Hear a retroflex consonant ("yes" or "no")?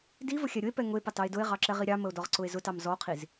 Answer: no